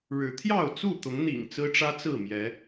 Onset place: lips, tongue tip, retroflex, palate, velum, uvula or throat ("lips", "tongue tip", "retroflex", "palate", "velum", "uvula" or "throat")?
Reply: retroflex